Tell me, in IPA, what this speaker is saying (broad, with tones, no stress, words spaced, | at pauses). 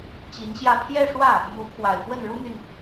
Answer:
t͡ɕi˧˥nɕjä˥˧ pʰjɛ˥˧ʂwä˥˩ | mu˧˥pʰwa˨˩ɪ̯fwə˥˩n ɻu˥n̪y˨n